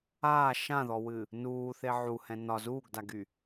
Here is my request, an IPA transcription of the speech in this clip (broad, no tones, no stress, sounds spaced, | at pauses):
aː ʃ ã ð ɔ w ɨ | n uː θ e ʕ u h ɛ̃ n ɒ z uː ɡ d a ɡ y